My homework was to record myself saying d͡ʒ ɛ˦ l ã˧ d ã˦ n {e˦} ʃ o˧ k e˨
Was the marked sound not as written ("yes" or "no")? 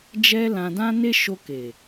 no